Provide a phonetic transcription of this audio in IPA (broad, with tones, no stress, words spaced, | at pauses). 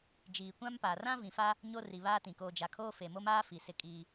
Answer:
d͡ʒiː˨kʷã˦mpaː˨r ã˦vĩ˨fa˦ | ɲo˦ri˨βaː˦tĩ˨ koː˨d͡ʒa˨kʰoː˦ fe˨mo˦maː˦ fi˨sɪ˦kʼiː˦